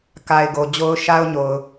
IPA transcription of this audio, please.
ka˨ɪ̯ ɡo˨d͡ʑo˦ʊ̯ ʃa˦ʊ̯ɲo˨ʊ̯

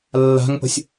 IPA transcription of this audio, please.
lːa̤ŋpə̤sʲ

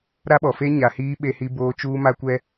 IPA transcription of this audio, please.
ɾa˦ɓɔ˨fe˦ ɲa˨hiː˦ ɓe˦hi˦boː˦ t͡ʃuː˦ma˦kʷɛ˦

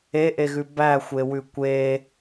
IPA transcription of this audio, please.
eʔeɣʉ bæxʷewʉ kʷe

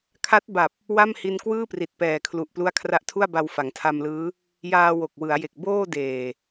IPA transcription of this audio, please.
kʰa˦˥t̚ba˨˩p̚ | wa˥˩m hi˧nkwɯː˥˩pri˨˩t̚ pɛː˨˩kʰlu˨˩ʔplu˦˥a̯ kʰra˦˥ʔtʰu˥˩a̯ba˧w fa˩˦ŋtʰa˧mlɯː˦˥ | jaː˧ wo˨˩k̚wɯ˩˦a̯je˨˩k̚ boː˥˩ deː˨˩

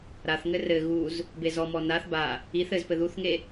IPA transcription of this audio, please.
ɾaθŋɘ rɘ ɣuz | bezɔmɔ naθ ba | iθ ɘzpɘ ðuθŋe

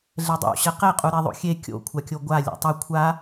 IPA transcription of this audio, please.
ɮɛdˤo̰ ɕɛqeqʼu ɾeðˤo̰xʲe kʲo̰ kʷʰakʲoɡʷa lʲa̰tˤɘ kʷʰa

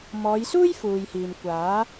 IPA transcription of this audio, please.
mɔː˨˧jsuː˥jfuː˨jhiː˨m kʷaː˨˥

